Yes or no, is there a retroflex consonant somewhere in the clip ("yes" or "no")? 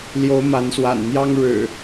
yes